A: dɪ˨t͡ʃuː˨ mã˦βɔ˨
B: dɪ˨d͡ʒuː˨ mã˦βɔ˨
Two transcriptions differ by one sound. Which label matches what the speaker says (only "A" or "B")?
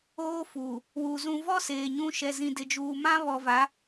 B